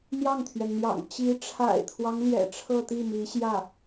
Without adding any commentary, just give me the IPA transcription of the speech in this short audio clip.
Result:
n̪ j ɑ˥˩ ŋ t̪ʰ ɥ ɛ˩ n n̪ j ɑ̰˨˩ ŋ t͡ɕ i˧˥ ʈ͡ʂʰ a̰˨˩ ɪ̯ t̪ʰ w ɑ˦ ŋ l j ɛ̰˨˩ ʈ͡ʂʰ ɤ˥˧ t̪ i˥˩ m i˧˥ ɕ j ä˥˩

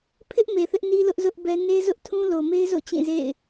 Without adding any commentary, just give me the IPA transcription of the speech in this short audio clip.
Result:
pʰ ɪ˦ ʔ m e˨ θ ɪ˦ ʔ n i˦ l ʊ˦ ʔ z ʊ˦ ʔ b ɛ˦ n e˦ z ʊ˦ ʔ tʰ ũ˦ l o˨ m e˦ ɪ̯ z o̰˦˨ t͡ɕ ĩ˦˨ z ḛ˦˨ ɪ̯

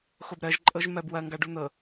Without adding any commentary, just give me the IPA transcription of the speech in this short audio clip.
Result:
x o b ɾ ɜ ʒ ǃʼ ɤ ʒ m ɜ b w ɐ ŋ ɡ a ɖ u n̪ ɤ

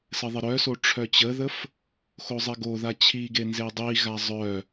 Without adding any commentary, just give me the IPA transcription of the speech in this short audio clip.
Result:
s ɘ ðˤ ə ɾ œ s o ʈ͡ʂʰ œ t͡ɕ ə ð ə f | x o zˤ i ɡ o ð a t͡ɕʰ i ɡ e n z e dˤ i ɣ a zˤ œ

